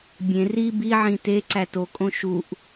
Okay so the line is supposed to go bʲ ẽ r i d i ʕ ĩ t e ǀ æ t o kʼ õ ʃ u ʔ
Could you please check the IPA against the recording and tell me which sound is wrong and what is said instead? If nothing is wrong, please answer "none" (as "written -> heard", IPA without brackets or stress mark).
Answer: d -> b